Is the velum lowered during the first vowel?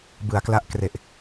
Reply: no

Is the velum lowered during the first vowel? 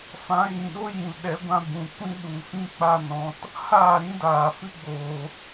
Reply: yes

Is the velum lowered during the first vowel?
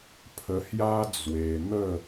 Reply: no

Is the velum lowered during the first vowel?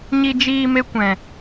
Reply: no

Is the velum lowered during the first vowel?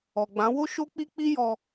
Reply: no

